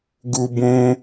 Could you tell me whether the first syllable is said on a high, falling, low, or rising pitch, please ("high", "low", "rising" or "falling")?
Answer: high